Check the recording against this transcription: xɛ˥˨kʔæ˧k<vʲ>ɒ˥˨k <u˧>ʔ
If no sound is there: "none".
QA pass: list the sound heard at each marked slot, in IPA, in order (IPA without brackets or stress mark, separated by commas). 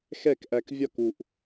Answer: vʲ, u˧